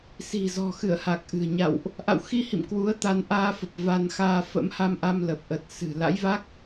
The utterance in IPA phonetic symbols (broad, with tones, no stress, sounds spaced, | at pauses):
s i̤˨˩ z ɔ̤˨˩ x ɨ˧˩ ə̯ h a˨˩ k̚ ʔ ɨ̤˨˩ ə̯ ɲ a̰˧˨ w ʔ | ʔ a̰˧˨ w x i˧ h ḭ˧˨ m k w u˨˦ ə̯ t̪ a˧ n ʔ aː˧ f ə˨˩ p̚ v a˧ n x aː˧ f ə̰˧˥ m h a˧ m ʔ a˧ m l ə˨˩ p̚ ʔ ə˨˩ t̚ s ɨ̤˨˩ l a̰˧˥ j v a˦˥ k̚